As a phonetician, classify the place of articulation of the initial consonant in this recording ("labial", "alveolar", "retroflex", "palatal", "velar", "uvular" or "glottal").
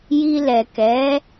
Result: palatal